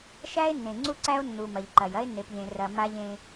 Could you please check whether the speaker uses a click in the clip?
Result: yes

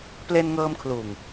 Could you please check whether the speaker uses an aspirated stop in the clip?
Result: yes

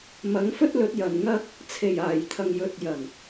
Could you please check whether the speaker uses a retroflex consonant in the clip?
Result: no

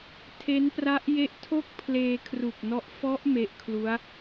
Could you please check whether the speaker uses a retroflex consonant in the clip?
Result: no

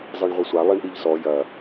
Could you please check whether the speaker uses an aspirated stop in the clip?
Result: no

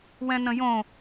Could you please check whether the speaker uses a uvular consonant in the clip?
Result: no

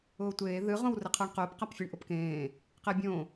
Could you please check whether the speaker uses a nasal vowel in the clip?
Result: yes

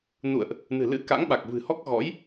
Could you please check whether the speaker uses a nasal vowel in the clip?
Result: no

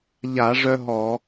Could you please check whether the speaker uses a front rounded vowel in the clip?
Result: yes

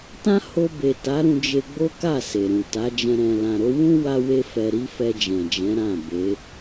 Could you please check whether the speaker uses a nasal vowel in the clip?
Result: yes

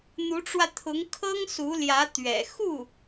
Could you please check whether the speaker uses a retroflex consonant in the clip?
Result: yes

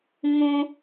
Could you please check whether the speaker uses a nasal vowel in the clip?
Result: yes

